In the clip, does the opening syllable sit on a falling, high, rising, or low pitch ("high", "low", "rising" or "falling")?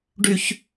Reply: high